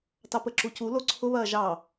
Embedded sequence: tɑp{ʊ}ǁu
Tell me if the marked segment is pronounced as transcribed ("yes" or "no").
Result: no